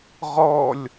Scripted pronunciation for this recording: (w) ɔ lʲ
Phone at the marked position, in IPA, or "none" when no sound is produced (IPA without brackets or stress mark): ʁ